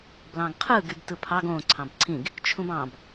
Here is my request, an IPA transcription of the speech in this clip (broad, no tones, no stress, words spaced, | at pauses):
blɑ̃ɡqʰɯ ɡybtɯpʰɑɡ õ ǀʰɑ̃bǀʰĩɡ | t͡ʃʰũbɑ̃b